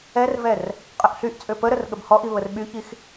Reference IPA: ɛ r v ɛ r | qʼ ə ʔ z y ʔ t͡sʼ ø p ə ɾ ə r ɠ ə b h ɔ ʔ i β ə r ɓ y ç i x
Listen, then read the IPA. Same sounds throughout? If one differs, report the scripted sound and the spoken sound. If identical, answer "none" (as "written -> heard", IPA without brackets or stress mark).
z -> ɬ